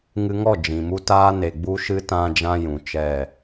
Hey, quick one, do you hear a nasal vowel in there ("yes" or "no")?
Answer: yes